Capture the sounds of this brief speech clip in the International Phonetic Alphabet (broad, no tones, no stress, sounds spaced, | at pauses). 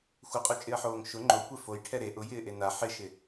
xʷ ɪ qʼ u t͡ʃʼ ɪ ɐ̯ ħ oː ŋ ʃ ʊ ŋ͡ǃ o kʷ e f o j ʈʰ ɛ ɾ e ʔ ʊ j ɪː ʔ e n a ħ ɪ ʃ ɪ